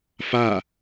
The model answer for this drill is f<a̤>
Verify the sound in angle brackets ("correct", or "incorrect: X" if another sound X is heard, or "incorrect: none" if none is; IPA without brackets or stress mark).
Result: incorrect: a